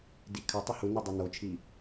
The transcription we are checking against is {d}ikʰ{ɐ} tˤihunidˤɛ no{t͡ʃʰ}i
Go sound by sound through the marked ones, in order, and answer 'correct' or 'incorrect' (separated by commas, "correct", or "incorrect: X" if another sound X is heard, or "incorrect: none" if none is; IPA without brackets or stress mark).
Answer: correct, correct, correct